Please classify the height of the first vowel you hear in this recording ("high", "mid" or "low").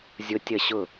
high